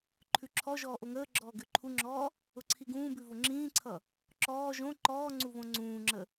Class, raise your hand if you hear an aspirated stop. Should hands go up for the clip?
yes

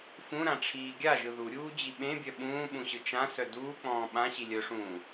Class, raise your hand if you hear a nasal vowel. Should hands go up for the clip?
yes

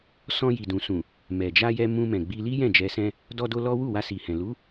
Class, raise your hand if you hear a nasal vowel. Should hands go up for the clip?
yes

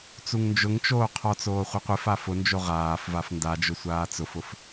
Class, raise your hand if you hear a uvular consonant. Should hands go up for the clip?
yes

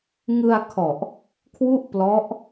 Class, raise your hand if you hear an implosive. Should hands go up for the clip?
no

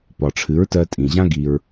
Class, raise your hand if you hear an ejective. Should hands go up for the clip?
yes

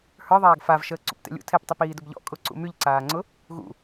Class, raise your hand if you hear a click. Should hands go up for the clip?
yes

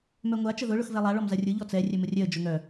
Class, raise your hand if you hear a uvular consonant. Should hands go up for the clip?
no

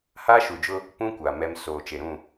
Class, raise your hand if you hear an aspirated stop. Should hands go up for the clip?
no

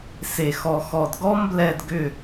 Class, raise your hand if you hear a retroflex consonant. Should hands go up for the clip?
no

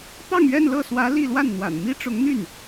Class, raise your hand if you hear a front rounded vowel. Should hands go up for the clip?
yes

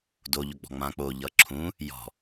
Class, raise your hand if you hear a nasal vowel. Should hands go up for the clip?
yes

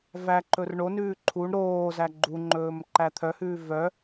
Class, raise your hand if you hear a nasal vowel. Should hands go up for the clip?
no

